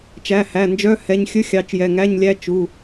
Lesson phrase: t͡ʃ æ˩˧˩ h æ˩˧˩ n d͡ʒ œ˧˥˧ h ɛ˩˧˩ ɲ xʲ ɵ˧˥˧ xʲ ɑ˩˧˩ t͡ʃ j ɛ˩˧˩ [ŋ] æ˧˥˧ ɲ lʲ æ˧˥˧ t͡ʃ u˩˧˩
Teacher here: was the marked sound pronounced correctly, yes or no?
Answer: yes